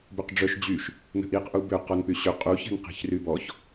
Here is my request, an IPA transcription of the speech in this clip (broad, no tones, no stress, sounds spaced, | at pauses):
b ʏ q ɖ͡ʐ œ ʃ d͡ʑ y ʃ | n ə̤ ʔ i q ʔ u b ʏ q ɔ n p y ɕ ʏ qʼ u ç ɛ̤ n q i̤ ç r y b ɔ ç